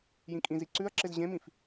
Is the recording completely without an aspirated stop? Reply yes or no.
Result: yes